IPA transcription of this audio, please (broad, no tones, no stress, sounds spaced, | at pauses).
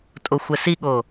tʼ o xʷ ɛ s i ɠ o